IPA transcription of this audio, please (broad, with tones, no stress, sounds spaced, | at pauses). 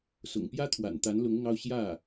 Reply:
s ʊ̰˨˩ ŋ p j ä˥ t̪ʰ w a̰˨˩ n t̪ a˧˥ n l ʊ˧˥ ŋ ʊ˧ ŋ ɑ˥˧ ʊ̯ ɕ j ä˥˩